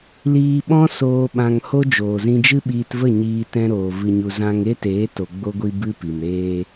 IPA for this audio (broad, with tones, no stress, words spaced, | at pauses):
liː˧ɓɔ̃˦soː˧ ɓã˧ŋho˦ d͡ʒoː˨ zĩ˧d͡ʒɨ˦ɓiː˧tvə˦˨ ɲiː˧ tɛ̃˧ɾoː˨ vɨ˨ɲu˨ zã˧ŋ e˦teː˨˦ to˧ɡ͡bo˦ ɡʷi˧ bɨ˦pi˨m ɾeː˧